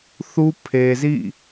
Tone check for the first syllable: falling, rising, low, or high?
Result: high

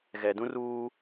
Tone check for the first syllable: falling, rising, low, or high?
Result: low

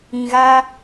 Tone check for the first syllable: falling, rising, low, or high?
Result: low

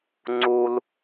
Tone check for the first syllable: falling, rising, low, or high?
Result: high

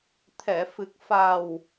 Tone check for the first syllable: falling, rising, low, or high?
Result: low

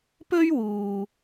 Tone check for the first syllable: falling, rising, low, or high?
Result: high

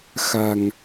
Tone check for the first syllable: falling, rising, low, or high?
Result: low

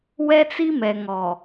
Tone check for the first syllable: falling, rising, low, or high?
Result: high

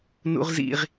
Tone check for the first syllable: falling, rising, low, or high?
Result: high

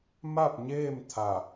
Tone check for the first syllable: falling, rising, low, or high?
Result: falling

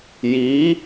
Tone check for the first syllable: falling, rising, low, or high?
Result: rising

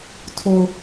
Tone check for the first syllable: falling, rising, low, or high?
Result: low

